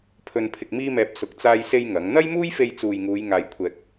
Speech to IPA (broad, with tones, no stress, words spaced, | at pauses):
pʰɵ˨npʰɪ˨k̚ miː˧mɛː˨p̚ sʊ˨˥k̚ t͡saː˧jse˧j ŋɐ˨˥ŋ n̪ɐ˥jmuː˥jfe˧j t͡suː˨jŋuː˨˧j ŋaː˧jkʷʰɛː˧k̚